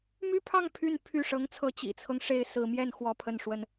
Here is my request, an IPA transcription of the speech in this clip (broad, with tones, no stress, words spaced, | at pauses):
my˥pʰɑ˥˧ŋ pʰy˥˧n pʰy˥˩ ʂɤ˧˥ŋt͡sʰɤ˧˥ t͡ɕḭ˨˩t͡sʰɤ˦ŋʂe˧˥ɪ̯ sɹ̩˧˥mjɛ˥˩n xwɔ˥pʰə˥˩nʂwə˥n